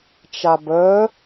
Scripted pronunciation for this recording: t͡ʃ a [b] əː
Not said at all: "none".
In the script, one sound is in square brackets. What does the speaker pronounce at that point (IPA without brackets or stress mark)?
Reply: b